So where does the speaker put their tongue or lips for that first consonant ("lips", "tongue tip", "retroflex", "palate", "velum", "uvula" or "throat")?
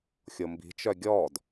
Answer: velum